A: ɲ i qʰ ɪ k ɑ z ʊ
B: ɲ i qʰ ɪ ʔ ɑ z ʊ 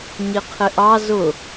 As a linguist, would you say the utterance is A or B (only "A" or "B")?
B